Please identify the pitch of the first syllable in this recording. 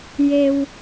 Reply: low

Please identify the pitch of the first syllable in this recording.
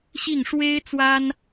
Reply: falling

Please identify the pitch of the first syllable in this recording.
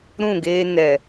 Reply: falling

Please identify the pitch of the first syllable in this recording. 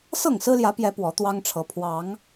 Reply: falling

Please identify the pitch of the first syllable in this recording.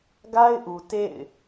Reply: high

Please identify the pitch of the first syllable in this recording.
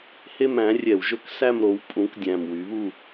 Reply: falling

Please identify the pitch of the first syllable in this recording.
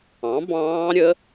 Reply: rising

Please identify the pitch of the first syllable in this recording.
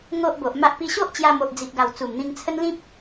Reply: high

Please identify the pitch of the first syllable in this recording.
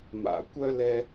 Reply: low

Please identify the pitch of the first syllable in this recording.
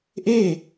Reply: falling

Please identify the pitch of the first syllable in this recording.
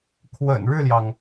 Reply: low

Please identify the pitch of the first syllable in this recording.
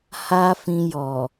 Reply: high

